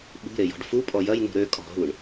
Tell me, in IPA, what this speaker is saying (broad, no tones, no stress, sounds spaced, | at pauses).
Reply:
ɓ ṳ ɾ e j ɔ̤ ɖ f u pʼ ɔ j ɐ j n ṳ ɾ ø kʼ ɔ̤ ɦ u ɳ